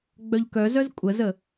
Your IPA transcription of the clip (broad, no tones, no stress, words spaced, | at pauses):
ɡ͡bœʎkœzœz kʷʼəzə